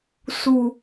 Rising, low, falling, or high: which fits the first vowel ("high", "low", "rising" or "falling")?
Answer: low